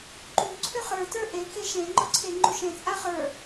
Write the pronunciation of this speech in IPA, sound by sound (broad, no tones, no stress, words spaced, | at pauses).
ǃu ǀʰʏχə˞ tə˞ʔe keʃẽ ŋ͡ǃɔǀʰeŋ͡ǃuʃẽ t͡sʼaχə˞